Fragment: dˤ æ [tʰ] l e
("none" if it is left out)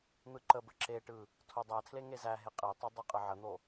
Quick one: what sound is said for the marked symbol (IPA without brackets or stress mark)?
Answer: tʰ